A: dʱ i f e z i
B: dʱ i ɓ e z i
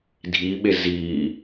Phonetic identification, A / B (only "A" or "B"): B